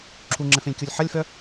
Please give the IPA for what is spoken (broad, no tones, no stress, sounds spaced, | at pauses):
ǁʰ u ŋ͡ǁ ɛ̃ f ẽ lʲ kʲ o lʲ ħ ɐ lʲ f œ